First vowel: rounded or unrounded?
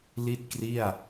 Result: unrounded